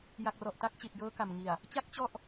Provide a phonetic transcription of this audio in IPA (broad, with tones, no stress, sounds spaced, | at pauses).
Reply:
j a˨˩ k̚ r ɔ˨˩ ʔ t a˦˥ k̚ t͡ɕ i˨˩ t̚ j ɤː˦˥ k a˨˩ m ŋ i˨˩ a̯ | t͡ɕ a˦˥ k̚ t͡ɕ ɔ˥˩ ʔ